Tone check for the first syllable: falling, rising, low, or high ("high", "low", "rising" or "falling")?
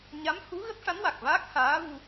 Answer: rising